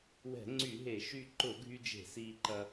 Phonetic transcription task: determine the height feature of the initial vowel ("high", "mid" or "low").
mid